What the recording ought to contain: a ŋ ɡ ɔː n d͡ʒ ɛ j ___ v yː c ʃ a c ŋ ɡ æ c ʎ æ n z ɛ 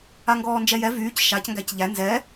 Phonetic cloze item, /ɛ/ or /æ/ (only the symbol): ɛ